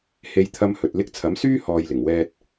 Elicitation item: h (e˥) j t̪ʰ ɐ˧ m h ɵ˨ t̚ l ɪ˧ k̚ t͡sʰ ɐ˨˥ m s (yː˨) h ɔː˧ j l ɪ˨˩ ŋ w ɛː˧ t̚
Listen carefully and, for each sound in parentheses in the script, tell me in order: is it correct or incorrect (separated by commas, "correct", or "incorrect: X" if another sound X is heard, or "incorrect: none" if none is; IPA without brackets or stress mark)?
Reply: incorrect: e˧, incorrect: yː˥